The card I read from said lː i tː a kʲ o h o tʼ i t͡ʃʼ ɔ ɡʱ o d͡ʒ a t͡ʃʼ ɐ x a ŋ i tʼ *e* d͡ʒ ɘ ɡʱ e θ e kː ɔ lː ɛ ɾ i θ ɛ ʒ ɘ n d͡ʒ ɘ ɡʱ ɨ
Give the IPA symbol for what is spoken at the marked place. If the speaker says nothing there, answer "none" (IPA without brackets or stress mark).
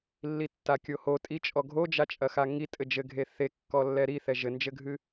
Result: ɘ